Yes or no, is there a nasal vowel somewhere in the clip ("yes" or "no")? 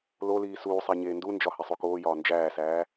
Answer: no